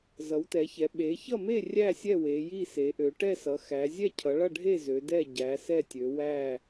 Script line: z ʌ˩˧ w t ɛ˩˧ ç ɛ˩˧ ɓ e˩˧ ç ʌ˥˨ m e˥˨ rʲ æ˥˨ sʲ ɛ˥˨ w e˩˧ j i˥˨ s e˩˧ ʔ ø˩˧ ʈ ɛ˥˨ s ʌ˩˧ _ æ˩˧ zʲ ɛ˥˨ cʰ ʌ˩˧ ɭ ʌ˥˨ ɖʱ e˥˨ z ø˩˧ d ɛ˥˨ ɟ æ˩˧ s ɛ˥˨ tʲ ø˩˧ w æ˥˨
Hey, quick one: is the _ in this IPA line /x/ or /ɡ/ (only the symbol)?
x